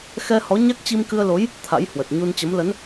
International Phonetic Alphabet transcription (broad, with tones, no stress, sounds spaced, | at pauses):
x ɛ˧ h ɔ˨˦ ɲ a˦˥ k̚ t͡ɕ i˧ m k ɨ˧ ə̯ l o˨˦ j | t̪ʰ a̰˧˥ j h w ə˨˩ t̚ ɲ u˧ n t͡ɕ ə˨˦ m l ə˨˦ n